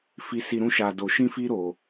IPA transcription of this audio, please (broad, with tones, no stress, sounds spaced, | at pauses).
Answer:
f i˧ s i˧ ɾ ũ˦ ʃ a˧ d o˧ ʃ ĩ˦ f i˦ ɾ o˧